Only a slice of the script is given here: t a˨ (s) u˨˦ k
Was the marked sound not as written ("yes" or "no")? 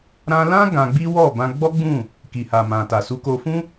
no